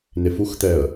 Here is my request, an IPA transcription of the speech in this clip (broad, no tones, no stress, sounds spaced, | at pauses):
n e f u x t̪ ɛ ə̯